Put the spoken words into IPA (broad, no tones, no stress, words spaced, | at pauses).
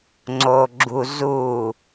ŋ͡ǀo ɡ͡ǁu zu